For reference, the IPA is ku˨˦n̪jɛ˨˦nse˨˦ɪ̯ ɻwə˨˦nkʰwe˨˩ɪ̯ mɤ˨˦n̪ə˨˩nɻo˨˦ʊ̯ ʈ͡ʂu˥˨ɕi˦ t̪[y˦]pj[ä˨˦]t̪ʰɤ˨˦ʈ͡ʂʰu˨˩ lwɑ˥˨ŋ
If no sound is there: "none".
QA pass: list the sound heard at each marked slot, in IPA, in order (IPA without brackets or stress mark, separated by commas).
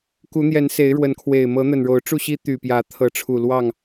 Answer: y˨˩, ä˨˦